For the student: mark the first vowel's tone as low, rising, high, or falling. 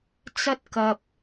high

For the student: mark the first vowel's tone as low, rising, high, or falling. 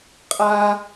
high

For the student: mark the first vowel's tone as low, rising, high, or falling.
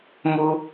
high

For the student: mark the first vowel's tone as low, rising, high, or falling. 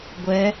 rising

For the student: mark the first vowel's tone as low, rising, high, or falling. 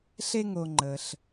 high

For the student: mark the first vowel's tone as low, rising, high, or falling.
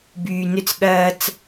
low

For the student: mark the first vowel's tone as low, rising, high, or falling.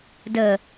low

